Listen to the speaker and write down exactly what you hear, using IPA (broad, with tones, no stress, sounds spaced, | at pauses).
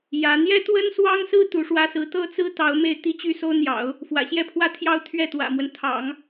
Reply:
j ä˧˥ n̪ j ɛ˥ t̪ w ə˥ n s w ɑ˥ ŋ s ɹ̩˥ t̪ u˧˥ ʂ w ä˥ s ɹ̩˧˥ t̪ ɤ˥˩ t͡s ɹ̩˥ t̪ ɑ˧˥ ʊ̯ m e˥˧ ɪ̯ t̪ i˥˧ t͡ɕ y˥˩ s o˥ ʊ̯ n̪ j ɑ̰˨˩˦ ʊ̯ | f w ä̰˨˩ ɕ j ɛ˥˧ pʰ w ä˥˧ t̪ʰ j ɑ˥˧ ʊ̯ t̪ʰ ɥ ɛ˥˩ t̪ w ä̰˨˩ m w ə˦ n t̪ʰ ɑ̰˨˩˦ ŋ